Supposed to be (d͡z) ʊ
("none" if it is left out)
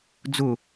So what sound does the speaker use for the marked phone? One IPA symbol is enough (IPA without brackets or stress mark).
d͡z